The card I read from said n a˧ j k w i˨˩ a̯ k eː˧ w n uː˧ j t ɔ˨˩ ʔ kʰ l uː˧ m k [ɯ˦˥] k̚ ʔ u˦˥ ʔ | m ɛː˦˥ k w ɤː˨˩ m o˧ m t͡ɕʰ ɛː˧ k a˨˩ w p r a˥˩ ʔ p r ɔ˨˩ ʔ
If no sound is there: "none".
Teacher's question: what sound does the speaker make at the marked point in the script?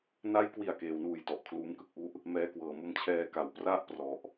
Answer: ɯ˥˩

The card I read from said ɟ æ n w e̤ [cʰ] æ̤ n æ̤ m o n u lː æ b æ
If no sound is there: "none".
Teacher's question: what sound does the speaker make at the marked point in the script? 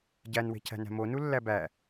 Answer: cʰ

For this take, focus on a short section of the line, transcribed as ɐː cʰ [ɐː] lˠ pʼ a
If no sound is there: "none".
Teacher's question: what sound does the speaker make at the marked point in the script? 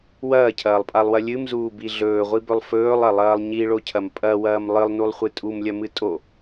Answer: ɐː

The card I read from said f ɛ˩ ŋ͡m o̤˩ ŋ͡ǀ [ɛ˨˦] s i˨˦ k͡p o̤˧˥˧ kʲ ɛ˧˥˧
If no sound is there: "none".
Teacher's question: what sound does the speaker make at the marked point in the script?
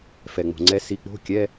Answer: ɛ˨˦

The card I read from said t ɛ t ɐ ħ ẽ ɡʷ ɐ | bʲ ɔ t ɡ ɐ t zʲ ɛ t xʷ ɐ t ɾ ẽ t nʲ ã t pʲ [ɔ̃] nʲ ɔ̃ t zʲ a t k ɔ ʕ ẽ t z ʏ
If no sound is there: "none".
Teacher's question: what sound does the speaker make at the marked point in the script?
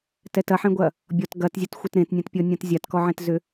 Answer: ɔ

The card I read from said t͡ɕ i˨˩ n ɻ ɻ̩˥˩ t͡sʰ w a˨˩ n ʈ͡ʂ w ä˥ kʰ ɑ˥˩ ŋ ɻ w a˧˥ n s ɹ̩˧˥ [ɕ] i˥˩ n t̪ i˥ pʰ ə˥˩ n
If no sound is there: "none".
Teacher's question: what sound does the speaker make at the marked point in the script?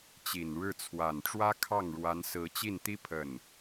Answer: t͡ɕ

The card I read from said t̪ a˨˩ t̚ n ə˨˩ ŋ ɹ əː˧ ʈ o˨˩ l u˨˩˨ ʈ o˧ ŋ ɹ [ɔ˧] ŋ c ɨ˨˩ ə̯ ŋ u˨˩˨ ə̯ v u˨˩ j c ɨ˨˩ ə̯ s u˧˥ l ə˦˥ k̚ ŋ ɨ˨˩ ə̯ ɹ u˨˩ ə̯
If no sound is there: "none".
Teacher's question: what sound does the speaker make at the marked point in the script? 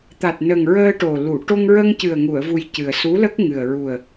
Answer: ə˧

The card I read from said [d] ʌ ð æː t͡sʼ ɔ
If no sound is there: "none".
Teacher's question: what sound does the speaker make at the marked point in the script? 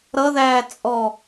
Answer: ɾ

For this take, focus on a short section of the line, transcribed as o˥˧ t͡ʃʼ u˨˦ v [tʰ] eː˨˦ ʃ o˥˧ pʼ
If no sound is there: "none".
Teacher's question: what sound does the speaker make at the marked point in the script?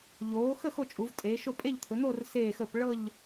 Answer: tʼ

